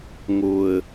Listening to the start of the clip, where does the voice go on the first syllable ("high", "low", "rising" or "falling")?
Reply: low